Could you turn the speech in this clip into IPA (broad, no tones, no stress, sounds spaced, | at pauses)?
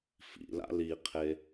f ḭ l a̰ l i qʰ e